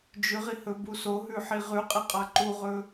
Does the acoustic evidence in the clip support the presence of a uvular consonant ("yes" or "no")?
yes